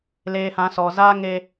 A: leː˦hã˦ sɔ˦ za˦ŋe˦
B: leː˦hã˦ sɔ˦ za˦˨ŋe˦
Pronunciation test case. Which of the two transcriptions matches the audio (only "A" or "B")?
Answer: A